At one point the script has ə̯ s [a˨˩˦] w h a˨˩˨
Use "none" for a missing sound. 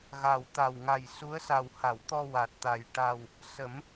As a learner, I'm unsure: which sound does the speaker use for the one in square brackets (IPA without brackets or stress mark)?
a˨˩